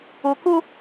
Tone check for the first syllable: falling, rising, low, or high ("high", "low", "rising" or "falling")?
low